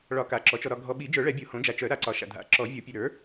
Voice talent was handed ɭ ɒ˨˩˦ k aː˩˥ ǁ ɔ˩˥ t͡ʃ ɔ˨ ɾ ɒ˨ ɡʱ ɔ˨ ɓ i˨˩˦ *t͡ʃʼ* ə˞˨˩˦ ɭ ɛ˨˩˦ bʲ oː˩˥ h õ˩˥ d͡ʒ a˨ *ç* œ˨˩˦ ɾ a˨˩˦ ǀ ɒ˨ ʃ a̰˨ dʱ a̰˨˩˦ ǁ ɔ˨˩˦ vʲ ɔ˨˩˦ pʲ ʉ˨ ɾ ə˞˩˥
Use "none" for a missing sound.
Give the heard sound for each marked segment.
d͡ʒ, t͡ʃ

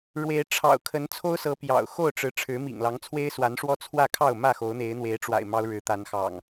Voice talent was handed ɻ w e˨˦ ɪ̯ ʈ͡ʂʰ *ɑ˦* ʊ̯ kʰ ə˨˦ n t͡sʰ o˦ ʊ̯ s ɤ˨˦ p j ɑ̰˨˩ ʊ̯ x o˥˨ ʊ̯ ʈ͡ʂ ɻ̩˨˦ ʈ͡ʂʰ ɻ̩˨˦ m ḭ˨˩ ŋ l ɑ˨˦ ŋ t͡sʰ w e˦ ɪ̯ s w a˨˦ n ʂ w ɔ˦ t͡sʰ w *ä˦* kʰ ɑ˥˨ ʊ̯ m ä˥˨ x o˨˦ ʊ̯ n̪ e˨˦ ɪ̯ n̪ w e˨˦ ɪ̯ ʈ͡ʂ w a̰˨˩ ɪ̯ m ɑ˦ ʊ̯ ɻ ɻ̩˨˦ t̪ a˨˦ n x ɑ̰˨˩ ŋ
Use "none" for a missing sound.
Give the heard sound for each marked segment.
ɑ̰˨˩, ä˥˨

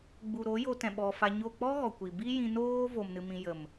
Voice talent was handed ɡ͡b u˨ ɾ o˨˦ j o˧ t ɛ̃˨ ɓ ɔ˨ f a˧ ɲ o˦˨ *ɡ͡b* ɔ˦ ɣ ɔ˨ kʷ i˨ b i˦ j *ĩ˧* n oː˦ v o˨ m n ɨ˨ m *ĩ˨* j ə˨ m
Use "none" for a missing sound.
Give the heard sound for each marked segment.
k͡p, ĩ˧, ĩ˨

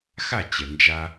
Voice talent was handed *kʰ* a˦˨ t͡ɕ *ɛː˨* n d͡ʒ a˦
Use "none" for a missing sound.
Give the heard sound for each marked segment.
x, ɛ˨

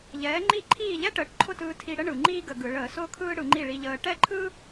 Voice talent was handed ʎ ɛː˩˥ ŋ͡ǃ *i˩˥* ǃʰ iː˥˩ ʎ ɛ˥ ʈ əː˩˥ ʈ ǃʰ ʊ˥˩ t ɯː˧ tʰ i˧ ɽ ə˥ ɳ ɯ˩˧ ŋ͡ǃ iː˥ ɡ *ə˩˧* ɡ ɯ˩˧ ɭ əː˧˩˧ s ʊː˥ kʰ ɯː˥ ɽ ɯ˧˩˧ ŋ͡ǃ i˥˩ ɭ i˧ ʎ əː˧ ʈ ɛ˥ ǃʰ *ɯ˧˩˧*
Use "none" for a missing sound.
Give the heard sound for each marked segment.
i˥˩, ə˧˩˧, ɯ˥

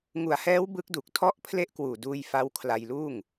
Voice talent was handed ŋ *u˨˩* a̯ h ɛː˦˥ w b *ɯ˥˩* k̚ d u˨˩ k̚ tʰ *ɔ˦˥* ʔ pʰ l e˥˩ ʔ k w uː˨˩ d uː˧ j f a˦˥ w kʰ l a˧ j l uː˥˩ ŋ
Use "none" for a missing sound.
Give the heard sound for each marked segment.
u˩˦, ɯ˦˥, ɔ˥˩

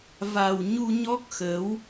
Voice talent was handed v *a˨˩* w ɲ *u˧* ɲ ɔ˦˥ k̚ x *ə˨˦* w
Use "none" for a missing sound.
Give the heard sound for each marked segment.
a˨˩, u˧, ə˨˦

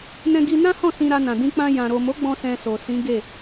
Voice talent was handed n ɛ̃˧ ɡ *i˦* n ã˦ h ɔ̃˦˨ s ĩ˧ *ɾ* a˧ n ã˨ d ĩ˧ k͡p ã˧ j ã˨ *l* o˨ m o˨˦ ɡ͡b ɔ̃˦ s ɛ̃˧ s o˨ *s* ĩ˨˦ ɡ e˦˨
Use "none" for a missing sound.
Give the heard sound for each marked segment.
i˧, ɾ, ɾ, s

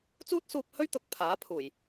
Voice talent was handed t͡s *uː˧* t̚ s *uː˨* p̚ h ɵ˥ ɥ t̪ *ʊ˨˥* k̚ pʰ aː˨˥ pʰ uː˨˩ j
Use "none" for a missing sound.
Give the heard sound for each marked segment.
uː˥, uː˧, ʊ˨˥

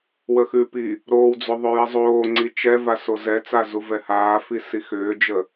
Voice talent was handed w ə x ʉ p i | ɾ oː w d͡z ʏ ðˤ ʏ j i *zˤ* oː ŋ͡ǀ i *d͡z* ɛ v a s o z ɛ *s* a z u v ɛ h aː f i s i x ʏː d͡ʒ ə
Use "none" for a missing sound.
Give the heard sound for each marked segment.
zˤ, t͡ʃ, t͡s

